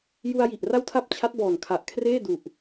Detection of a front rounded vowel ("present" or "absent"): absent